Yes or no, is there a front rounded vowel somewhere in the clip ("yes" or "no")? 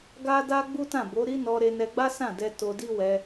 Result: no